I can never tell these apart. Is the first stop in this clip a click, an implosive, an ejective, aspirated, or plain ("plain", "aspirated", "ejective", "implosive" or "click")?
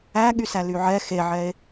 implosive